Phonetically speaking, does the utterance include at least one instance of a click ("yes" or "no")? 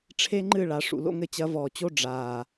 yes